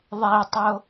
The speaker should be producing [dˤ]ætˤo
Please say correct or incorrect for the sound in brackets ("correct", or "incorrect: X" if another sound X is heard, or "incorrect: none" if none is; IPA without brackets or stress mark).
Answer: incorrect: ðˤ